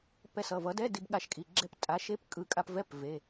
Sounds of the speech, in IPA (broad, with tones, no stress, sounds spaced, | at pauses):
p ɛ˧ s ʌ˩˧˩ v ʌ˩˥ d ɛ˧˥˧ d i˧ b ɠ a˧ ʃ kʼ i˩˧˩ ɡ͡ǁ ɛ˧ p tʼ a˩˥ ʃ e˦˥ p kʼ ɯ˩˧˩ kʼ a˧ p v ɛ˧˥˧ p v e˩˧˩